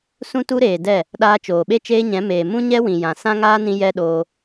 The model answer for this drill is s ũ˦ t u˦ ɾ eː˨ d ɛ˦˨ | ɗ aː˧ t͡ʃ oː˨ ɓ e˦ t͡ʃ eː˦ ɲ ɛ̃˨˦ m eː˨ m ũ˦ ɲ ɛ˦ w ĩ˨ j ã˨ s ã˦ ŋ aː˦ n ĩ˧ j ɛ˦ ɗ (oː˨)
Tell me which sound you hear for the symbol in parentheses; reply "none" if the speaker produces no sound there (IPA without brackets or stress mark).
oː˧